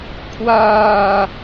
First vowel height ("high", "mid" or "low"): low